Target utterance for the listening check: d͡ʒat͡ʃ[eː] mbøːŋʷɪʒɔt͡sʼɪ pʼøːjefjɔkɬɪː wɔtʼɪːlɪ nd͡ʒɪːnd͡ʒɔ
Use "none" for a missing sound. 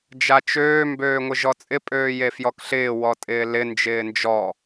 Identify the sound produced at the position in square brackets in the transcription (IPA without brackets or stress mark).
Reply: øː